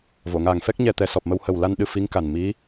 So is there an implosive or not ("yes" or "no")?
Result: yes